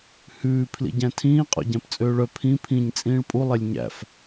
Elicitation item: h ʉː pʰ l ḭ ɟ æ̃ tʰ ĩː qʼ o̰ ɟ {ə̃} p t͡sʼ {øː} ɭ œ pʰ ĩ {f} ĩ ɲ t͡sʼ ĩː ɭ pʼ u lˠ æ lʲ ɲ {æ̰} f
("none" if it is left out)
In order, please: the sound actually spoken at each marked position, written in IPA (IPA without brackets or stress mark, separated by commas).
æ̃, øː, pʰ, æ̰